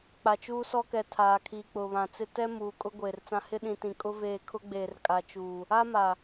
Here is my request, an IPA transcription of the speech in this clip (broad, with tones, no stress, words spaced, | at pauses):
k͡pa˨t͡ʃuː˦sɔ˦kɛ˨ tʰaː˨kʰiː˨k͡pʊ˨βã˨ t͡sɪ˦ tɛ˦ muː˨ kʼʊ˦ ɡʷeː˨rt͡sã˦ hɪ˦ɗĩ˨ tĩ˨ kʼʊ˦veː˦˨kʰʊ˦ɡ͡beː˨r kʼa˨t͡ʃuː˨ | a˦ma˨